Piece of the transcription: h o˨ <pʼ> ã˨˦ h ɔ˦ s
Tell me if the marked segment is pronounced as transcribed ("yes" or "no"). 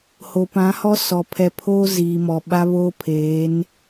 no